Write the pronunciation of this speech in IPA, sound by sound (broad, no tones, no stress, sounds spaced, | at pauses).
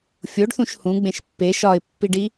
fʲ o ɖ θ ũ ʃ h ũ ɡ͡b ẽ ʃ pː e ʃ ɒ ɪ̯ pː i ɖ i